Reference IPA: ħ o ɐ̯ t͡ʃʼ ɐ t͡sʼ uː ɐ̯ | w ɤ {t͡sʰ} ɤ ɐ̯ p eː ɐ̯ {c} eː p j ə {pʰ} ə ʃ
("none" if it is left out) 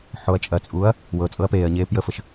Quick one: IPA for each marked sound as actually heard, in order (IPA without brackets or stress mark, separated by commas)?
t͡sʼ, ɲ, f